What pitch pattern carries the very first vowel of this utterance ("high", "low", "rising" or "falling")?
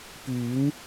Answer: rising